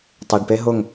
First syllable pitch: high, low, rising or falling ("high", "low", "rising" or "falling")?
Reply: low